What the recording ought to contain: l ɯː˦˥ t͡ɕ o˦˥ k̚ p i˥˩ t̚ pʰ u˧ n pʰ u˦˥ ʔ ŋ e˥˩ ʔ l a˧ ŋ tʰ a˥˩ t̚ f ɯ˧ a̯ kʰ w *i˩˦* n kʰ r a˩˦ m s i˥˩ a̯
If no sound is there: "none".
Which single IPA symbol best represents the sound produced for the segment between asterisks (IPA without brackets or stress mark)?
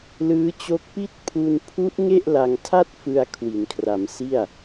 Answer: i˩˦